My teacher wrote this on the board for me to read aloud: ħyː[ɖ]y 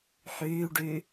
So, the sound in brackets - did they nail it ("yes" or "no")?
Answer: yes